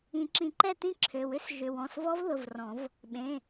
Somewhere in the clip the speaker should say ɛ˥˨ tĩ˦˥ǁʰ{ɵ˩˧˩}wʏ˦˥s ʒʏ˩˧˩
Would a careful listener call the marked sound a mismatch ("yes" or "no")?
yes